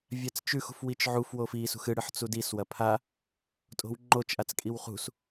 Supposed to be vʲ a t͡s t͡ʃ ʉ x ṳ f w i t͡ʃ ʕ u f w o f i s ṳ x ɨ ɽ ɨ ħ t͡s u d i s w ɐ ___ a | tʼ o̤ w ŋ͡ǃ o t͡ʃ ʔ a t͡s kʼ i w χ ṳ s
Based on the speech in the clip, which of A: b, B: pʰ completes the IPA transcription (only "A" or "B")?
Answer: B